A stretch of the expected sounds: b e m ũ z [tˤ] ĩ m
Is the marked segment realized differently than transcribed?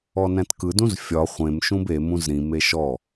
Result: yes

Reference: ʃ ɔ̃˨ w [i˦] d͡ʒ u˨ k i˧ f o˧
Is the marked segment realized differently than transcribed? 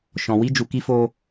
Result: yes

